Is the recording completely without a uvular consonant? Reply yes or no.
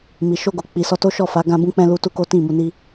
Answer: yes